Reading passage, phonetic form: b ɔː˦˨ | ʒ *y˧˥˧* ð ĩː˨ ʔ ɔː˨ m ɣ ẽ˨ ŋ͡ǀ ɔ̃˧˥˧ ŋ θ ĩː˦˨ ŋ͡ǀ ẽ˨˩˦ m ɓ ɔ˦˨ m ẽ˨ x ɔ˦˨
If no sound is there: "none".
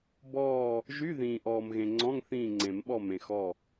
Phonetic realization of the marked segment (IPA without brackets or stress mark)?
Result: y˧˥˧